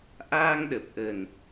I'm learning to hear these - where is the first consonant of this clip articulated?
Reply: throat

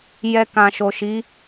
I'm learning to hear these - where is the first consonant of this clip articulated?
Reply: palate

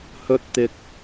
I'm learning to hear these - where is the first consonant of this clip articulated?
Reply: throat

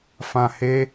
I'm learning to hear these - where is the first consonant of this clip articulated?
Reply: lips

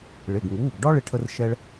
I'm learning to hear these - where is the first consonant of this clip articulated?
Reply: retroflex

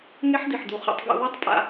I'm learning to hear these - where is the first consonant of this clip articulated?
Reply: velum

